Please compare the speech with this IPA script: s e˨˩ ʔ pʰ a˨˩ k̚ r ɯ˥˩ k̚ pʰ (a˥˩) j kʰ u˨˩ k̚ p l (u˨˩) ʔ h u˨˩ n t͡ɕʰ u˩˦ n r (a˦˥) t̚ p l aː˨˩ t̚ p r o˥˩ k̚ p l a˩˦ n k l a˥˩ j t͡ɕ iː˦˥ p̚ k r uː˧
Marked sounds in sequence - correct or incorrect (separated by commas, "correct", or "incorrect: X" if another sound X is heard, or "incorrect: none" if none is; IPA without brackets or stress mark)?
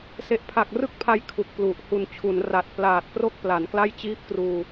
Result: incorrect: a˦˥, correct, incorrect: a˨˩